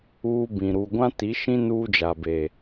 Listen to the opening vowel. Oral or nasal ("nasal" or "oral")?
oral